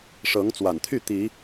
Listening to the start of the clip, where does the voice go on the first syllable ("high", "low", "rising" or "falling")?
rising